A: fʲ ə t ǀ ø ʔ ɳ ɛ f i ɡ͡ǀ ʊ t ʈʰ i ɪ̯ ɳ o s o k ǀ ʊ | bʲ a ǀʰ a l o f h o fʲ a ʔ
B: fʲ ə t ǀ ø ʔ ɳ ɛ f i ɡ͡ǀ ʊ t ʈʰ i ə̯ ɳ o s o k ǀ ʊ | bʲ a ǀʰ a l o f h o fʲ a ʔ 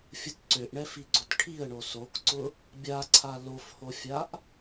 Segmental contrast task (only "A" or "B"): B